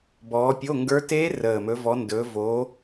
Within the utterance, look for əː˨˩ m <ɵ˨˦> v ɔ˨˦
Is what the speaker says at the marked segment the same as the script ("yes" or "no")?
yes